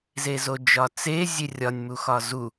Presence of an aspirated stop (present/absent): absent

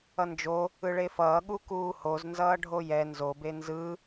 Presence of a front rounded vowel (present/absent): absent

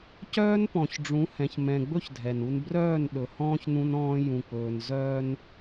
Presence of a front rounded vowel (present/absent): present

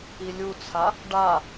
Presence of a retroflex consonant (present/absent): present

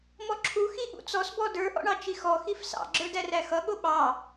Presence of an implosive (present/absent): present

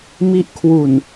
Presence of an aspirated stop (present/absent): present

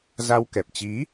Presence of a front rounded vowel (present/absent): absent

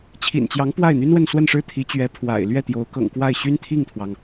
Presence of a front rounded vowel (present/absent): present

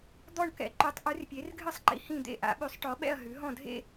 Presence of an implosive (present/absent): present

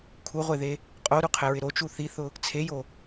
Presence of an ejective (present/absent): present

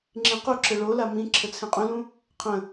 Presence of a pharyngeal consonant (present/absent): absent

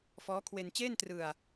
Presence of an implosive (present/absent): absent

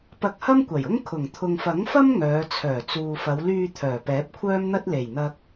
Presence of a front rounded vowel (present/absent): present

